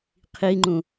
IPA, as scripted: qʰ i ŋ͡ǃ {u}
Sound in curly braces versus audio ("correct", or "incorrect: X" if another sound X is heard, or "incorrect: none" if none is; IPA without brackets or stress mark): incorrect: ũ